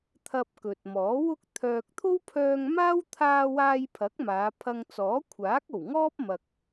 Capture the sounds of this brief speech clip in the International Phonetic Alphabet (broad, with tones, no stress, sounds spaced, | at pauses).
t̪ʰ ɐ˧ p̚ k ɵ˨ t̚ m ɔː˨˥ w ʊ˥ k̚ t̪ʰ œː˨ k̚ t̪ʰ o˥ w pʰ œː˧ ŋ m aː˥ w t̪ʰ aː˧ w aː˧ j pʰ ɐ˨˥ k̚ m aː˨˧ pʰ ɐ˧ ŋ t͡s ɔː˨˥ kʷʰ aː˨˥ k̚ o˨˩ w ŋ ɔː˥ p̚ m ɐ˨ k̚